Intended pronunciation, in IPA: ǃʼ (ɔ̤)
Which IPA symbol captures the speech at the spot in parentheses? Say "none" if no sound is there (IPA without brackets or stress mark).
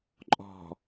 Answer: ɔ̤